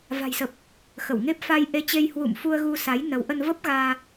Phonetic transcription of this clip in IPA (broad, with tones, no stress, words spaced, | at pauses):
va̤˨˩jsə˨˩p̚ | xə˧˩wŋe˦˥p̚ fa˧jʔe˧t͡ɕe˧j hwṵ˧˨mfu˧ə̯ɣu˧ sa˨˦jnə˨˦w ʔə˧n və˦˥p̚ɣaː˧